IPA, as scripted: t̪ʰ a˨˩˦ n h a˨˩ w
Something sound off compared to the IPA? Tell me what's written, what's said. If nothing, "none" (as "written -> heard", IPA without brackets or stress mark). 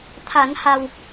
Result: none